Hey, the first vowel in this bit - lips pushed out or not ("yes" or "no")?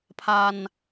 no